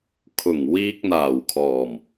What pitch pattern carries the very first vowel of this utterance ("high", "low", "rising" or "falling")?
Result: low